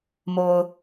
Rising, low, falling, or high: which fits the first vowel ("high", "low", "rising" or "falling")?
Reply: low